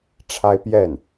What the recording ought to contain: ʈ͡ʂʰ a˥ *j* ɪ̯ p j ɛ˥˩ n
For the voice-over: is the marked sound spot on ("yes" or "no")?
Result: no